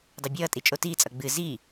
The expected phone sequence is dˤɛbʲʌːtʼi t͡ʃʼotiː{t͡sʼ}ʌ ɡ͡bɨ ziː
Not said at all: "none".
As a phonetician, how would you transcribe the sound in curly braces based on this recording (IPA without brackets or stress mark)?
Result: t͡sʼ